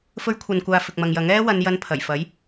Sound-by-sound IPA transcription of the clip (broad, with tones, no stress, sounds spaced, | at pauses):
f ɵ˥ ɥ kʷʰ ɐ˧ n kʷ aː˧ f ɪ˨ k̚ m ɐ˨ ŋ j ɐ˨˥ ŋ ɛː˥ w ɐ˨˧ n j ɐ˧ n pʰ ɐ˨˩ j f ɐ˨˥ j